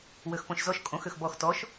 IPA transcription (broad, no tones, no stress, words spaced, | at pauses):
wøxpõʃzɔʃ kʼõx øxbɔx tɔʃ